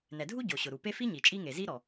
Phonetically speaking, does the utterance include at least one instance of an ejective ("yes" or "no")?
yes